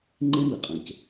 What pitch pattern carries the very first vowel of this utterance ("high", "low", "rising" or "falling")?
high